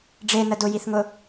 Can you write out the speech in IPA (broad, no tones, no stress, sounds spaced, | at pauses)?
ɖ͡ʐ e n ə d ʊ j i θ ŋ ʊ